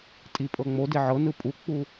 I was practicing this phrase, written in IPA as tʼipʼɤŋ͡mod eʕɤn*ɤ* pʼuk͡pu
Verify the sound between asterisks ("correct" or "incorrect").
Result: incorrect